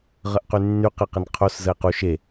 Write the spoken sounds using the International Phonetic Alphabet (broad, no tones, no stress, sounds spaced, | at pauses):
ʁ ə ʔ q y nː y q ɘ q ɘ n qʰ o s z ə e̯ q u ʃ e